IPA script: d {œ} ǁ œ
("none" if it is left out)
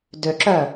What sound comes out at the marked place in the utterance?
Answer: ø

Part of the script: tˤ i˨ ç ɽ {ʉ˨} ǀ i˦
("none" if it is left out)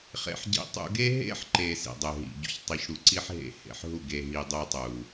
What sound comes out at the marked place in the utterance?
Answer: u˨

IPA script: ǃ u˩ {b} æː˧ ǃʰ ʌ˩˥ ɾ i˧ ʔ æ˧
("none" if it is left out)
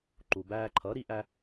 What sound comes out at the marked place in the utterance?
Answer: b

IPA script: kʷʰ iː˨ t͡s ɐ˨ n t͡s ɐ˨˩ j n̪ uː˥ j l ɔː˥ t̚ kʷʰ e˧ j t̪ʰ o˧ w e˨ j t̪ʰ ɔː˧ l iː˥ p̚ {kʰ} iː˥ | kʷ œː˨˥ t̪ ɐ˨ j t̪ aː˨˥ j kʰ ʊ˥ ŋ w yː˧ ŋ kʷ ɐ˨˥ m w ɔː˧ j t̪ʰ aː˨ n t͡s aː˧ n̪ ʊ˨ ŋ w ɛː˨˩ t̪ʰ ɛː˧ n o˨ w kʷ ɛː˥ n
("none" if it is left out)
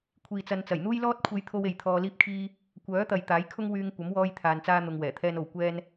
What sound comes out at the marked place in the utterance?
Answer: kʰ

